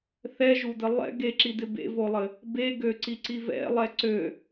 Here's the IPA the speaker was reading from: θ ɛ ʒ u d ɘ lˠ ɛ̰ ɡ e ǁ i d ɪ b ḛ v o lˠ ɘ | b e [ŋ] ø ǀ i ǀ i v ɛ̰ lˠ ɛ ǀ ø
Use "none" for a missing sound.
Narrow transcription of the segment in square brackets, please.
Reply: ɡ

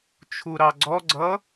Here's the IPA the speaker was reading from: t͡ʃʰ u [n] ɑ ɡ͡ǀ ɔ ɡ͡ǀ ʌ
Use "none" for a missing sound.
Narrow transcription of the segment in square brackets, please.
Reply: ɾ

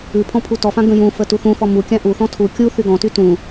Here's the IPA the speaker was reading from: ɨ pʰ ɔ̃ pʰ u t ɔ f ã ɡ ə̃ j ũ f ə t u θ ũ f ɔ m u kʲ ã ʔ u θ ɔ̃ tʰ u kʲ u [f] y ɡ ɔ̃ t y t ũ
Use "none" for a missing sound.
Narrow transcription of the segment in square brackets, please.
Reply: θ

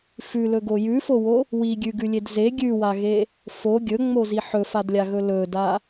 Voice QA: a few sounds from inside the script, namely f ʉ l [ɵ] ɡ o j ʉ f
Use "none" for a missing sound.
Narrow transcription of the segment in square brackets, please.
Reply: ɵ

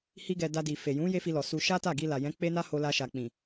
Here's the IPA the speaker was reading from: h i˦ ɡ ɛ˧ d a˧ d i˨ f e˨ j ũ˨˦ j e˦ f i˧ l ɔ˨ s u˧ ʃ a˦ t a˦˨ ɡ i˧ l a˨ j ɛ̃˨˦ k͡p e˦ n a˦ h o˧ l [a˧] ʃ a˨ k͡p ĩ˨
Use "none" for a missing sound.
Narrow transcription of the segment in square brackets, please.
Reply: a˧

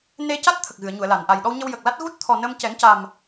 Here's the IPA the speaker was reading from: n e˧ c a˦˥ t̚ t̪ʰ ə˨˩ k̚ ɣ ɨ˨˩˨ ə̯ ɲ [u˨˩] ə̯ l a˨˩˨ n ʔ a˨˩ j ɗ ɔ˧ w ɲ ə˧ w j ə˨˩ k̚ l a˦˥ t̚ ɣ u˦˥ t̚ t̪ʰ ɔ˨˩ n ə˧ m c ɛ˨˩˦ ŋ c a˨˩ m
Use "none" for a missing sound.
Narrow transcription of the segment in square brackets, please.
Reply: u˨˩˨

